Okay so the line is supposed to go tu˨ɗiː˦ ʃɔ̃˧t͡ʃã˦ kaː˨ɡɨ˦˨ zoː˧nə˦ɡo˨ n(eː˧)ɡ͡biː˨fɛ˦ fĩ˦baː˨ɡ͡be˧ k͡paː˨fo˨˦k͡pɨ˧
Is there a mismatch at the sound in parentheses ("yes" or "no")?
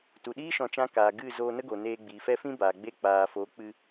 no